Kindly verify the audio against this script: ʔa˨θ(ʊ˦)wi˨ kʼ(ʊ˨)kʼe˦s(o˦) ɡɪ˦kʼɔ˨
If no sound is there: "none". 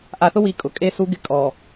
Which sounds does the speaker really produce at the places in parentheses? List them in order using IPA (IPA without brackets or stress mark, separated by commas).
ʊ˦, ʊ˨, u˦